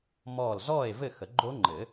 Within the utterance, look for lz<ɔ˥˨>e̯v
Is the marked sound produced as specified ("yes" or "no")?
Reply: yes